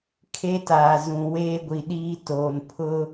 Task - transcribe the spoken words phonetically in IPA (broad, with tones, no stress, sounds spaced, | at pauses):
kʰ e˦ t aː˨ z ũ˨ w eː˦ ɡʷ i˨ ɗ iː˦ t oː˨ n pʰ ʊ˦